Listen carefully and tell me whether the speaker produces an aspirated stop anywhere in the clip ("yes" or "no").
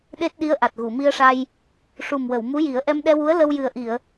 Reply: no